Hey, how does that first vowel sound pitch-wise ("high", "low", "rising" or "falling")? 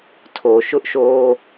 low